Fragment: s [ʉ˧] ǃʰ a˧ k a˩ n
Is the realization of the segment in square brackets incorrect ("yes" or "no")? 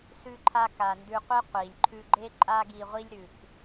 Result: no